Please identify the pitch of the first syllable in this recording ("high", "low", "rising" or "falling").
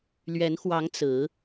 rising